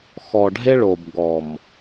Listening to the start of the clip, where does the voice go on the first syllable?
low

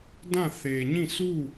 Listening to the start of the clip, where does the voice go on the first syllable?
falling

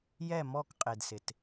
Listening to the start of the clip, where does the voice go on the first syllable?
low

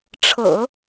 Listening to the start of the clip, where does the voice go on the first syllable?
low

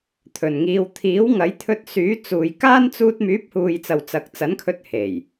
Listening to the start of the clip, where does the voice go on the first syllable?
low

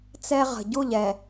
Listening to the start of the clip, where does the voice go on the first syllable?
high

